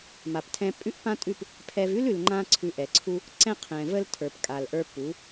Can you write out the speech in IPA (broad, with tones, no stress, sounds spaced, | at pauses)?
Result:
m a˨ p tʰ ɛ̃˧ pʼ ʉ˦ ʔ p ã˦ tʼ ʉ˦˨ p | pʰ ɛ˧ v ʉ˦ l ʉ˨ l ŋ͡ǃ ã˧ ǀʰ ʉ˧ ʔ ɛ˨ ǀʰ u˦ | ǀ ɛ̃˦ qʰ ɛ̃˨ v ə˦ l tʰ ə˞˨ p kʼ a˨ l ʔ ə˞˧ p u˨˦